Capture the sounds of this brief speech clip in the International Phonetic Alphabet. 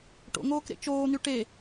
ʈ o̰ ŋ oː k ɾ ḛ t͡ʃ oː n̪ y ʈ e

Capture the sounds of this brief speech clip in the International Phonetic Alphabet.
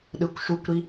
ɗ ɯ kʷ ʃ u kʷ ɾ i

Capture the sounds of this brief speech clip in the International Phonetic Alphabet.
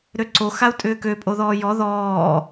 ɾ ø ǀ o x a u̯ tʼ ʏː k ø pʼ o ð ɔː j ɔ ð ɔː

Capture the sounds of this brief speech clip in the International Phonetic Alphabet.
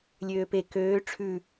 lʲ øː p e k øː ʈ͡ʂʰ ʉ

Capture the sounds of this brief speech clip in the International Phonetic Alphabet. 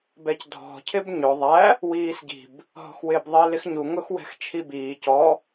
b ɛ c dʱ ɔ̤ cʰ ɪ b ɲ ʊ ðˤ æ | w iː s ɟ i̤ b | ɦ ɔ̤ x w ɪː b ðˤ iː l ɪ x ɲ u ŋ ʊ x w ɛ̤ x t͡ʃʰ i b iː c ɔ

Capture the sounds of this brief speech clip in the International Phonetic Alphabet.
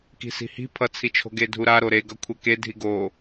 k i̤ s i̤ h i̤ pʰ ʌ t͡sʰ i t͡ʃʰ o̤ ɡ e dʱ u ɾ a ɾ o ɾ e ɡ ʌ kʷʰ ɛ k e dʱ i ɡ o

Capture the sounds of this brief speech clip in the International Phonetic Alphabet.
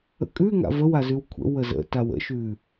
ə̰ kʼ ʉ ŋ a̰ v ə w a z ʉ w kʷʰ ə̰ w ə z ə̰ t a w ə̰ ʃ ʉ

